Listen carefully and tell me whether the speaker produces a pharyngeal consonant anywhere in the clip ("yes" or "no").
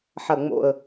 yes